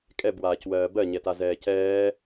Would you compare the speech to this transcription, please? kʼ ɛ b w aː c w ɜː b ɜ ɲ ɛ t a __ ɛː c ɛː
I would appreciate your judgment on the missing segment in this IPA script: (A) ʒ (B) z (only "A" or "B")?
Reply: B